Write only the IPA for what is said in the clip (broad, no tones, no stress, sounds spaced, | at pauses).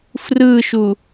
f r ɯ ʃ u